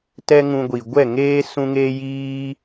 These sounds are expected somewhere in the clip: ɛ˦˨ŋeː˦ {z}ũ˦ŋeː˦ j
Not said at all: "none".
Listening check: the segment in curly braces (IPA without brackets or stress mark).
s